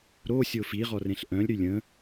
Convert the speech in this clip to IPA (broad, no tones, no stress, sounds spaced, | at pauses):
ɾ o sʲ o f i ʁ ɔ r ẽ ɬ ʔ œ̃ lʲ ɾ y lʲ ə̃